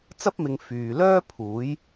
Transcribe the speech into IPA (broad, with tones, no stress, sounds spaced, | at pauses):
t͡s ɐ˥ p̚ m ɪ˨˧ ŋ f yː˨ l œː˥ pʰ uː˨˥ j